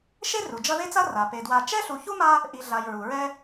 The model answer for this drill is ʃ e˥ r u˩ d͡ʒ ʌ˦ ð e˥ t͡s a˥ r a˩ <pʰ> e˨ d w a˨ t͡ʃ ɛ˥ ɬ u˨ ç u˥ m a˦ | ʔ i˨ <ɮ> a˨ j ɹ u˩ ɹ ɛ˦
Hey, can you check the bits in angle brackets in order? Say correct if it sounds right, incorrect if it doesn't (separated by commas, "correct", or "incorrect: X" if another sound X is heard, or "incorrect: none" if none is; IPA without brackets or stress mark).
incorrect: p, correct